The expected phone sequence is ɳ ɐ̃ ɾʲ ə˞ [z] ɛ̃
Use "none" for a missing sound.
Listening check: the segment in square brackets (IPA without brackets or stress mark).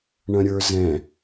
z